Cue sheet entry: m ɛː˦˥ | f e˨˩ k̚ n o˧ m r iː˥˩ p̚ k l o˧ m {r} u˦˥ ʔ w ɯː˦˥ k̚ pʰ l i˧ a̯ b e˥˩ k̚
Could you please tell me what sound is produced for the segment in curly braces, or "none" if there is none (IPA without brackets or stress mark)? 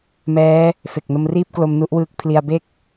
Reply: n